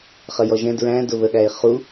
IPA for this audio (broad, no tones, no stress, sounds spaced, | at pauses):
χ ʌ j ɔ ʒ ɛ̃ d ɹ æ̃ d ʊ β ə ɠ æ ɪ̯ χ u